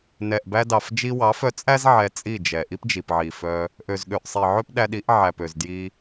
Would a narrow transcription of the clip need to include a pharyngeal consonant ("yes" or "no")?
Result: yes